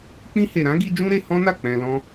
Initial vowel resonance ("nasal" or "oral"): nasal